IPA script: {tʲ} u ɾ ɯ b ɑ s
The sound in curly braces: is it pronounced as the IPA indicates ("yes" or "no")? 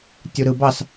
yes